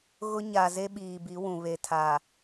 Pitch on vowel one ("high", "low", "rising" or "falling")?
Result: high